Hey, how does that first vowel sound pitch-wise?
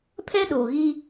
high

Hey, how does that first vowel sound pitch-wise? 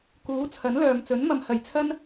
rising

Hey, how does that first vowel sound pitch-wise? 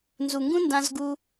low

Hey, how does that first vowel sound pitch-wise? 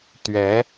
rising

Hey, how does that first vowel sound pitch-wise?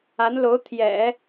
rising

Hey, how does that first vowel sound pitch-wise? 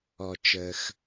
low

